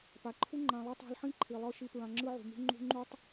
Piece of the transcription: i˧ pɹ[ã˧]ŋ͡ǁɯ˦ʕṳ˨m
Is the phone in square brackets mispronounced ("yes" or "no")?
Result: no